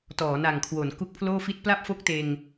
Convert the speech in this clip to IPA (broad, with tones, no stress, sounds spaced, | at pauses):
t ɔː˩˦ n a˨˩ ŋ kʰ w o˩˦ n k u˦˥ k̚ pʰ l oː˥˩ f i˥˩ t̚ p l a˥˩ p̚ f o˦˥ k̚ t eː˧ ŋ